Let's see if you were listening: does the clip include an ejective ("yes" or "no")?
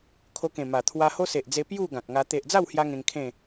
no